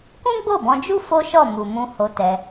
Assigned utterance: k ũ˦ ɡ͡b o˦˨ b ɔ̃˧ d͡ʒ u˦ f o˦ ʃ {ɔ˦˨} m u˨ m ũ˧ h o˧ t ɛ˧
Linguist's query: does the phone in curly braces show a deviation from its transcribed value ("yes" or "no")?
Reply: no